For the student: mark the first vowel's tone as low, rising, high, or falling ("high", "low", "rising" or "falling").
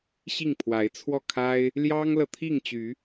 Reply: falling